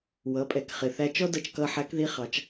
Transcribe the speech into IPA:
wʌ˩˧pʼɛ˩kχɪ˩θæ˧ t͡ʃɔ˥dʌ˧t͡ʃkʌ˧ ħæ˧˥kði˧˥χɑ˩˧t͡ʃ

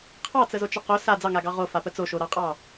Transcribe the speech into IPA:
qʰɑt͡səzot͡ʃə qo sa d͡zɑŋaɡɑ ʁofapə t͡soʃoɾɑqʼɑ

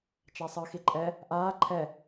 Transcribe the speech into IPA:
t͡ʃasˤɯːxiǃʼɛ | ʔaː ǃʰɛ

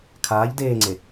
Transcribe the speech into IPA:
kʰaːʎ deːŋ͡ǀe

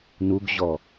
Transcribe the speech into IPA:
nuɡʑɔ

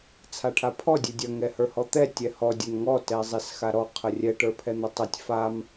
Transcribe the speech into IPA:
t͡sʰaʈʰapʰɔ dʲɛdʲɐ ŋɛhə˞hɔt̪ɛ tʲɛhɔ dʲɐnŋɔ tɛzˤesxaɾɔ qʰərʲɛ ʈə˞pʰɛn̪ɐtˤətʲ fam

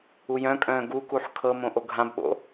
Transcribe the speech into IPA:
ujœ̃kʼœ̃ː ɡukuħ kʰɤmõ ʔoɡʱãbɓo̰

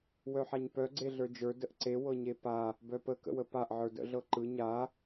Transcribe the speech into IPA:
wœħaɲpœ ɡ͡ǀeɮə˞d͡ʒə˞ dəʔǀe wɤɲepa | bœpə kə̰wəpaʔ ʕə˞də̰ ɮɤǃɯ ɲa

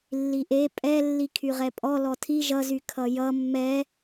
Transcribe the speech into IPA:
lːiʔe pʼɛ lːikʰyʁɛpʼɔ lɔtʰi ʒʌzy kʰʌjʌ mːɛ

